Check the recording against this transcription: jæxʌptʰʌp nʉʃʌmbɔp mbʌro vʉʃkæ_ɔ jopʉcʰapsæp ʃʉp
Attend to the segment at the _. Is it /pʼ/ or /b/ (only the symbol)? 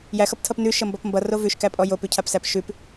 pʼ